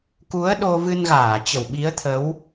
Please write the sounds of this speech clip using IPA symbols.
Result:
k u˨˦ ə̯ ɗ o˧ v ɨ˧ n ɣ aː˧˩ t͡ɕ ə˧˩ w ɓ i˨˦ ə̯ t̪ʰ ə˨˦ w

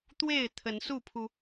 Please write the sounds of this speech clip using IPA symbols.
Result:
t̪ w e˥˨ ɪ̯ t̪ʰ ə˨˦ n s u˥˨ pʰ u˩

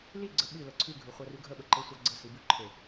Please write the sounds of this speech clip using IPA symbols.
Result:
l i ɡ͡ǀ ə ɓ ʉ l ə ǀʰ ʉ ɡʱ ʉ χʷ ɐ r ʉ ɡʱ ə ɓ ə ǃ e sʷ ɐ ɡ͡ǀ ə s i b ʉ ǃʰ e

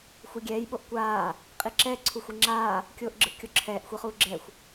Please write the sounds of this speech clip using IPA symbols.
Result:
xʷ ʌ ɡʲ ɛː j ɓ o ʔ kʷ aː | qʼ i ǁ ɛ ǀʰ u xʷ i ŋ͡ǁ aː | kʲ oː ʔ ɡ͡ǁ ɯ ʔ kʲ o ǁʰ ɛː ʔ xʷ ɛ χ uː ɡ͡ǁ ɛ xʷ

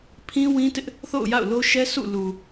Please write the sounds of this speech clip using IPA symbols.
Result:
pʰ ĩ˦ w ĩ˦ t ɪ˦ ʔ | θ o̰˦˨ ʊ̯ j a̰˦˨ ʊ̯ l o˦ ʃ ɛ˦ s ṵ˦˨ l u˨

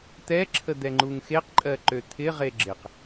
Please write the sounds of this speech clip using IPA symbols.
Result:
t̪ ɛ ǁʰ ə d̪ ɛ ŋ͡ǃ u ŋ x e q ǃʼ ɜ ǃ ø t̪ʰ ɪ ʁ e ɡ͡ǁ ɪ q

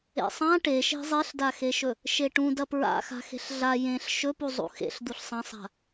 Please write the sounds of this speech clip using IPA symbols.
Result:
ḛ sˤ ã ʈ e ʃ e̤ zˤ e ɬ d a x e ʃ ɵ | ʃ e ʈ ũ d ɐ p ɹ a̰ x a̤ x e̤ ɬ ɮ a j ẽ ɬ ʃ ɵ p u zˤ ṵ x ḛ ɬ d̪ u ɬ sˤ ɐ̃ sˤ a̤

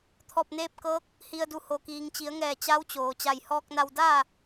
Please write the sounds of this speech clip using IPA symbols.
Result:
t̪ʰ ɔː˧˩ p̚ n eː˧ p̚ k ɤː˧˥ k̚ | h i˩ ə̯ d u˩ h o˩ k iː˩ ŋ t͡ɕ i˩˧ ə̯ ŋ ɛː˧˩ t͡ɕ a˧˥ w t͡ɕ oː˩ t͡ɕ a˧˩ j h ɔː˧ k̚ n a˧ w d aː˥˨

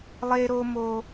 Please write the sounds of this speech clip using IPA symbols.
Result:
lˠ e˦ ɾ o˦ m o˦

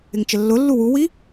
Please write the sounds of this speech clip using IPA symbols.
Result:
ɪ ŋ t͡ʃ ə lː ʊ lː u w u w i

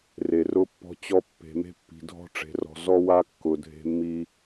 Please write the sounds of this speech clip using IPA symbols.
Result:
r e˨ r ʊ˦ pː ɔ̤˦ t͡ɕ ɔ˦ pː e̤˨ m e̤˦ pː i̤˨ dʱ ɔ̤˦ ʈ͡ʂ e̤˨ r ɔ̤˨ z ɔ˦ w a˦ kː ʊ˨ dʱ e̤˦ mː i˦

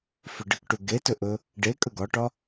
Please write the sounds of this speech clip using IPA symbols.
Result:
f ʏ ɖ ə k ʈ u ɡ e t ɵ ʔ ɵ | ɖ e kʼ ə ɡ ɒ ʈ ɒ

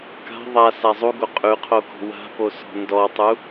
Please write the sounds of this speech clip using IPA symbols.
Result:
k a̤ ðˤ a s a zˤ u ɡ o qʼ ʉ qʰ o k ɔ̤ w a̤ p o s ɔ̤ n d ɔ tˤ u

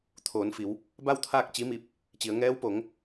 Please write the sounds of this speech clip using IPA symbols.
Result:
t̪ʰ oː˩˧ n f i˩˧ w | b a˥˨ w t̪ʰ aː˥˨ k̚ t͡ɕ i˧˥ m i˧ p̚ | t͡ɕ i˩˧ ə̯ ŋ ɛː˧˥ w p o˩˧ ŋ

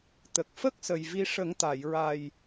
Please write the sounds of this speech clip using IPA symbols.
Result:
t̪ ə˨˩ k̚ f ə˦˥ k̚ s ə˨˩ j v i˧ ʂ ə˨˩˦ ŋ t̪ a˨˩˨ j ɹ a˨˩ j

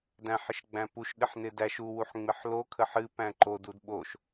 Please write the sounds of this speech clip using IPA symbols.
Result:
d æ̃ ħ ɪ ʃ ɡ͡b æ̃ p u ʃ ɗ ɪ ħ n ɪ d æ ʃ u w u ħ ŋ͡m ɪ ħ l o kʰ ə ħ ɨ p æ̃ ǃ o d u d ɓ o ʃ

